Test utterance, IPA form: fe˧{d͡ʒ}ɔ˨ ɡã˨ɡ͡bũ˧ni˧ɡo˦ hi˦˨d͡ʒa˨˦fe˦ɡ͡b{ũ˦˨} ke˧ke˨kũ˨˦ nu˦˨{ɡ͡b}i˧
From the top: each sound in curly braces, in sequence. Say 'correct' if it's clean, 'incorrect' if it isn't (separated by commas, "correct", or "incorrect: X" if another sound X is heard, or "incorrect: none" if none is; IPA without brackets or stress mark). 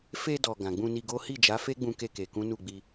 incorrect: d, incorrect: ũ˧, correct